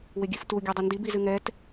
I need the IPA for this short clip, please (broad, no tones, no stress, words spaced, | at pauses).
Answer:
wɪɡʲɨftu ɡʲɛdˤɪndib izɨŋɛt